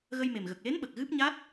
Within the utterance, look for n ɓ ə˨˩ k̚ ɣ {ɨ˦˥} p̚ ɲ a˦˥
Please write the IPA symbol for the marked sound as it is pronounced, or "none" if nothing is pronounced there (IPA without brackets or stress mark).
ɨ˦˥